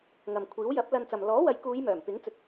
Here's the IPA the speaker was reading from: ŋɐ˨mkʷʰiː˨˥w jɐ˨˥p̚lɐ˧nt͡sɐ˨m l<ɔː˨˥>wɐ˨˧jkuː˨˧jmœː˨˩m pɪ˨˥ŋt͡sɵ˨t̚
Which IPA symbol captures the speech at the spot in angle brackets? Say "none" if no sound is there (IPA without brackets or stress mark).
ɔː˨˥